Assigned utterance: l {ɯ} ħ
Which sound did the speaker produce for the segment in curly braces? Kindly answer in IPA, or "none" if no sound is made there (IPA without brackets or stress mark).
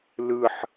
ɯ